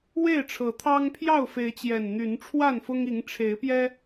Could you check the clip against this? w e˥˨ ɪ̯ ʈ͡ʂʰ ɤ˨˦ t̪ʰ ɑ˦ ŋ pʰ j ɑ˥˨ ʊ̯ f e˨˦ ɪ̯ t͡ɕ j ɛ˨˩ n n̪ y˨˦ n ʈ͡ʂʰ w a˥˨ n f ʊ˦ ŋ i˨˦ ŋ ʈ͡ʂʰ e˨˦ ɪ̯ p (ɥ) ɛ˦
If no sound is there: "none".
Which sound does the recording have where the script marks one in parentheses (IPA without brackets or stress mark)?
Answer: j